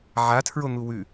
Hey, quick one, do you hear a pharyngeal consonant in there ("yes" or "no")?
yes